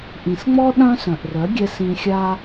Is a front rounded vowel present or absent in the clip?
present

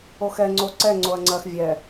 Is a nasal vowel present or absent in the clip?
absent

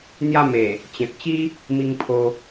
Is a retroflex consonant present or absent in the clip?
absent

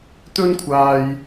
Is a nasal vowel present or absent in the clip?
absent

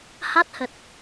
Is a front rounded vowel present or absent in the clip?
absent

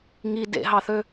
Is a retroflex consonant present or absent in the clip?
absent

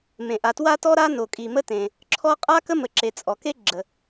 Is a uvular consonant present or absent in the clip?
present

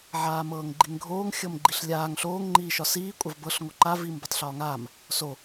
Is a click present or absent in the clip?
present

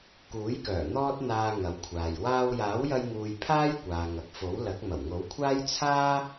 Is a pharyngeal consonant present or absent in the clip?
absent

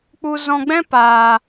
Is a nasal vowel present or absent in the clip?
present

